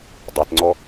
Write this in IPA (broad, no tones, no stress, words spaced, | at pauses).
dˤɪtŋ͡ǀɔ